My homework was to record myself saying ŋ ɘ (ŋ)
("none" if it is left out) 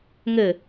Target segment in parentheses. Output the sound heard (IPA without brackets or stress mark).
none